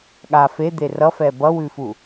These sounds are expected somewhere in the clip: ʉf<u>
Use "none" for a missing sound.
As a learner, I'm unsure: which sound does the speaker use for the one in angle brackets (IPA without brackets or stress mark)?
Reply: u